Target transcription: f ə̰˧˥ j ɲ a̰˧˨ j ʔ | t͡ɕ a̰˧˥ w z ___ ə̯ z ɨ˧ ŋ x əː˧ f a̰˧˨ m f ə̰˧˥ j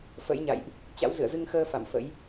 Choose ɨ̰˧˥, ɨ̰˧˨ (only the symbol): ɨ̰˧˨